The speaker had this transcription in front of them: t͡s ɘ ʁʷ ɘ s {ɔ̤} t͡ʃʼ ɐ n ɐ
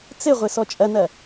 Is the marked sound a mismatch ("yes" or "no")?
yes